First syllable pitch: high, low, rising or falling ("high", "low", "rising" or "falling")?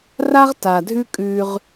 high